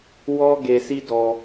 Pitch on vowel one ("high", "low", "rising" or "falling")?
high